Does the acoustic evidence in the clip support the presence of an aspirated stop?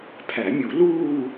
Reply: yes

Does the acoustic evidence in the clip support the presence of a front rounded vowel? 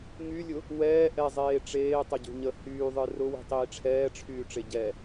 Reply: yes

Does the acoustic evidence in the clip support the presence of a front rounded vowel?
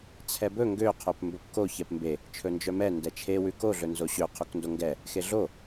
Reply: yes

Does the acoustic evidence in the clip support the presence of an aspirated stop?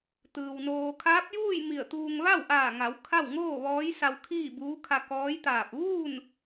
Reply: yes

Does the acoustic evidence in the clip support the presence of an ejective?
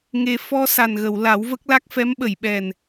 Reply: no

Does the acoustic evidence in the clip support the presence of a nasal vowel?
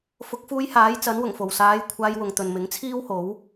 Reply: no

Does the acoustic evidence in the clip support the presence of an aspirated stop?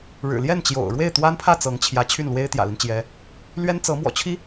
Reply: yes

